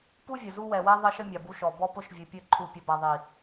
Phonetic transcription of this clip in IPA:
pu˦vʲə˨ zu˦ wɛ˨wɛ˦ ðˤɘ˦ʃə˦ mʲa˨bu˦ʃɔ˨ bɔ˦pʊ˦ʃvʲɘ˨ pʲɘ˦˨ǃʰu˨pʲə˨ ba˨ðˤi˨

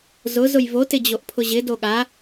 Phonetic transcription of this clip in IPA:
zʊz ʊjvo tɪd͡ʑoʔpʰʊʑɪ doɠa

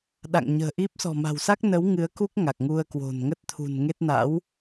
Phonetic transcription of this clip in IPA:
ɗa̰˧˨ŋɲə̤ː˨˩ʔi˦˥p̚ sɔ̤˨˩ma̤˨˩wsa˦˥k̚nə˨˦w ŋɨ˨˦ə̯ku˦˥k̚ ŋa˨˩k̚ŋu˧ə̯kwo̤˨˩n ŋə˦˥t̚ t̪ʰṳ˨˩nŋe˦˥t̚ na̰˧˥w

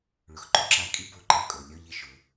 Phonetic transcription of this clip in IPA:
ɭʊ˩xǃʊ˧˥ǁa˧ kʼi˥bo˧ǃɛ˧ kʼo˩ lʲɔ˧ʎɪ˧˥ ʃʊ˩˧

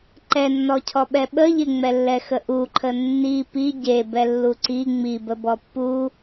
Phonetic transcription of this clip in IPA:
ǃɛnːɔcʰɔ ɓɛɓə ʎɪŋ͡mɛ lːɛxəʔuǃʰə nːi pi ɟe bɛlːuǀi ŋ͡mibəbɔ pːu

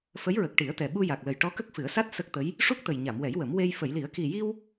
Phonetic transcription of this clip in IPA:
fə˧˥jɹə˨˩k̚ ʈi˨˩˦ə̯t̪ɛ˨˩ ɓu˧ja˨˩k̚lə˨˩j ʈɔ˧˥kə˦˥k̚fɨ˨˩˦ə̯sa˦˥t̚ sə˦˥k̚t̪ə˧˥j | ʂu˦˥k̚t̪ə˨˩j ɲa˨˩˨mwɛ˨˩˦jwə˨˩˦m we˧j fə˨˩˨jli˨˩˦ə̯ki˨˩ji˧w

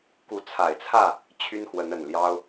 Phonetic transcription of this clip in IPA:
ku˨˦t͡sʰa˨˩ɪ̯t͡sʰä˥˨ | t͡ɕʰy˦nxwə˨˦nə˨˩nljɑ˦ʊ̯

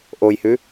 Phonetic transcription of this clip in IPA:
ʔojhʉ

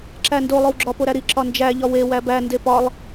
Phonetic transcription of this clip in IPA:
ǁændo lˠowɡ͡ǁɒ poɾæɾi ǁɒnd͡ʒæ ʎɒwe wæbæ ndepɒlˠ

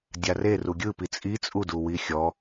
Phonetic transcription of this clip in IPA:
dʲare ruɡʲɯpi t͡sʼi t͡sʼuduwi xʲɔ

